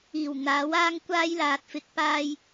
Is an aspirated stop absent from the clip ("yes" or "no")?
yes